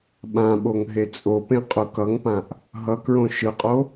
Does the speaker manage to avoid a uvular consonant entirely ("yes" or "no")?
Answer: no